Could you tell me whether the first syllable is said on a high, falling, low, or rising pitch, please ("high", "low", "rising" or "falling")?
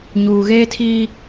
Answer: low